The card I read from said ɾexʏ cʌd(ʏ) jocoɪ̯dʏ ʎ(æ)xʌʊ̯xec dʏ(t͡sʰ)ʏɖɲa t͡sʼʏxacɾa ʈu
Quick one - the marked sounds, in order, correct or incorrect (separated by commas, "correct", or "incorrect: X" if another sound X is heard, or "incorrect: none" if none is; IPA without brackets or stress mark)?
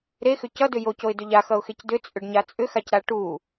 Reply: correct, incorrect: a, incorrect: t͡sʼ